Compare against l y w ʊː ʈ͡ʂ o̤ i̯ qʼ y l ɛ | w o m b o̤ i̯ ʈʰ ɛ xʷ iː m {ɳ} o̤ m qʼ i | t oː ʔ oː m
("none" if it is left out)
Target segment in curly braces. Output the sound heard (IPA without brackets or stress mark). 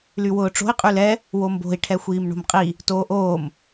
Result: ɳ